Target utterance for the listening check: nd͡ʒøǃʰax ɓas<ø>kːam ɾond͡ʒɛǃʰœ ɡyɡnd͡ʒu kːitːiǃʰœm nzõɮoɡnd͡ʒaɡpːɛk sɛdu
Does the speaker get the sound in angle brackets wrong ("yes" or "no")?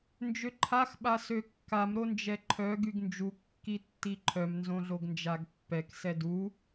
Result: no